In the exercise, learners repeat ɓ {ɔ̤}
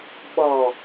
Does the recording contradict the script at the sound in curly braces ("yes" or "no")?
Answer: yes